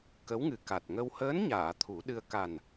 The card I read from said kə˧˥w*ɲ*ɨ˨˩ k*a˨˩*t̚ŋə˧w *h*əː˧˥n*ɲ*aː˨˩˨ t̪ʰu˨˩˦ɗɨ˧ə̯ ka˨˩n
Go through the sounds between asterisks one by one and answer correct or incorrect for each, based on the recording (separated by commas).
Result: incorrect, correct, correct, correct